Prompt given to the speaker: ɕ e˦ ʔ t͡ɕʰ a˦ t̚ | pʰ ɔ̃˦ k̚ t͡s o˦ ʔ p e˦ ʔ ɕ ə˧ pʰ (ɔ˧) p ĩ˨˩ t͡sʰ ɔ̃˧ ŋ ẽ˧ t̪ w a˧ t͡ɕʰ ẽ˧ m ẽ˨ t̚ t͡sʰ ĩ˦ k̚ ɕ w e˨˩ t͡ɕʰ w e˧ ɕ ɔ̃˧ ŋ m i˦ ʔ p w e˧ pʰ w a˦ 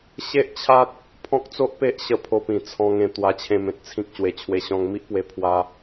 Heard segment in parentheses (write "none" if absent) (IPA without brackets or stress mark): o˧